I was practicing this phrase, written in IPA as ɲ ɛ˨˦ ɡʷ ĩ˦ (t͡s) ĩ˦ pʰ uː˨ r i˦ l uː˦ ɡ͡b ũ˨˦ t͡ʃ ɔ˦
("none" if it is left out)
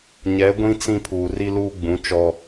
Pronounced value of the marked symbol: t͡s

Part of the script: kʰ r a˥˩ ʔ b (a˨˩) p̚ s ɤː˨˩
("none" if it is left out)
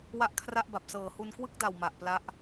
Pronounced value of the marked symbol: a˨˩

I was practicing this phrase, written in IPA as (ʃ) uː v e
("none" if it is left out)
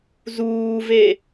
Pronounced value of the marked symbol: z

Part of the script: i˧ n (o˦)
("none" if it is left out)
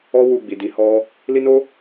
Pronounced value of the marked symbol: o˦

